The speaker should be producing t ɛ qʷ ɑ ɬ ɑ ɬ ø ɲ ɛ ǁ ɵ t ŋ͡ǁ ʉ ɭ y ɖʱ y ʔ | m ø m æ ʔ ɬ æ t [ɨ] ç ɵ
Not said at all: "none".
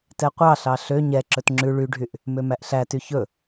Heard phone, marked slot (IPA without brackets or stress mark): y